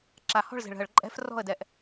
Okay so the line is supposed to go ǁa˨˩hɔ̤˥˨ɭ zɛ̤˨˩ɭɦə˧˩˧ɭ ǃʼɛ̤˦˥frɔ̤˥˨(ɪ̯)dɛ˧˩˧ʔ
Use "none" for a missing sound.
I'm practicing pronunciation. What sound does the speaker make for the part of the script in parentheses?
ə̯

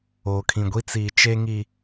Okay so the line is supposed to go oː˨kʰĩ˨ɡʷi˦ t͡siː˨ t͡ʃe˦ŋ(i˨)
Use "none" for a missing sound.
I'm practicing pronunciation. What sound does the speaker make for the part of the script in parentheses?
i˦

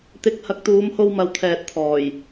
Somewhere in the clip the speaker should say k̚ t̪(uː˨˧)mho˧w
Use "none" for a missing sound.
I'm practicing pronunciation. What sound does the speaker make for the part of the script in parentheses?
uː˨˧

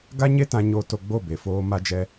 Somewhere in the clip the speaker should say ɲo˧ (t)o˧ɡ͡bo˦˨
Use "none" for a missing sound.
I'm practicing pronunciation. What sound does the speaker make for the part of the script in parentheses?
t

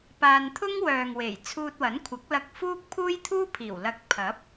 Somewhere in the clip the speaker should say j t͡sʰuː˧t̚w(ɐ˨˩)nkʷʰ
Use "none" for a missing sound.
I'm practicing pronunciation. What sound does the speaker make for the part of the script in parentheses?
ɐ˨˥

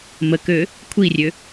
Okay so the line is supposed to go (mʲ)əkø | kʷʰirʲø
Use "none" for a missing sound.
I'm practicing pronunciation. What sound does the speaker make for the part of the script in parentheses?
m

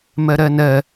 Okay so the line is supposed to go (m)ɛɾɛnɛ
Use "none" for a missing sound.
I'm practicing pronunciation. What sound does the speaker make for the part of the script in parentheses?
m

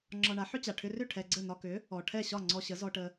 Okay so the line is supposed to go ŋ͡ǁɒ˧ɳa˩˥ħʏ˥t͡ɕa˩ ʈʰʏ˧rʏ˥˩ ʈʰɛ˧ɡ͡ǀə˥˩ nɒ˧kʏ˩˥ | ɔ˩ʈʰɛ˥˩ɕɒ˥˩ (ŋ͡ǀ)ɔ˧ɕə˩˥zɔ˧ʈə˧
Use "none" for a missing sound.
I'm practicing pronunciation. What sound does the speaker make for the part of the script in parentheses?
ŋ͡ǀ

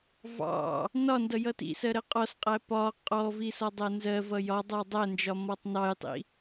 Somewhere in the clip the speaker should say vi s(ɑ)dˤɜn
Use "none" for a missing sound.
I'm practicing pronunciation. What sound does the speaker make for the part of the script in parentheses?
ɒ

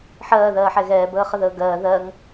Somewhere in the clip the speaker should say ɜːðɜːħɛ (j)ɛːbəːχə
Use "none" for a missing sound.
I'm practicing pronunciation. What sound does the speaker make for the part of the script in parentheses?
ɣ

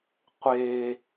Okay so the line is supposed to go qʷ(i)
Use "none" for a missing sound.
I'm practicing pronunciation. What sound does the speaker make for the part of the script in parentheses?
e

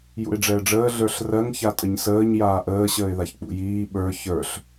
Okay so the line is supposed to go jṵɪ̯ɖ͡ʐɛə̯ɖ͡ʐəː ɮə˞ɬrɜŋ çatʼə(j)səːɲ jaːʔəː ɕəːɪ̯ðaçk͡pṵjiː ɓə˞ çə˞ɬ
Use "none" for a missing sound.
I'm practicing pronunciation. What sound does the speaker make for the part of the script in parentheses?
ɲ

